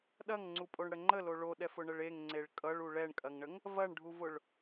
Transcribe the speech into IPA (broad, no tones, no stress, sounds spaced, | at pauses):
ɗ ɐ ŋ ŋ͡ǀ u pʼ o ɳ ɽ ə ŋ͡ǃ ə l o ɭ o ɗ ɛ f ʊ ɳ ə ɭ e ŋ ŋ͡ǀ e ɭ kʼ ʌ ɭ u ɭ ɛ ɳ kʼ ɐ ŋ ɳ ə ŋ | v ɐ ɳ ɖʱ u v ʊ ɭ